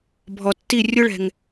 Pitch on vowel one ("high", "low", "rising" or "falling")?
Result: low